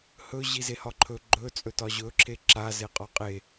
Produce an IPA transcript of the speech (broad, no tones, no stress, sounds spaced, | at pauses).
h ɵ ʑ i z e h ɒ ǃʰ ɵ ɡ͡ǃ ɵ t͡sʼ ɵ t ɒ ʑ ɵ ǁʰ e ǁ a z e qʼ ɒ qʼ e